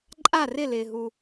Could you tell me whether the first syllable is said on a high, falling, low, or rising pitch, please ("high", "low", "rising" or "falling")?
falling